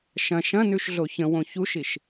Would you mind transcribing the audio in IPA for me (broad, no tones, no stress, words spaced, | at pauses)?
ʃɐ̃ ʃɐ̃nʉʃɮo çə̃wõ çuʃiʃ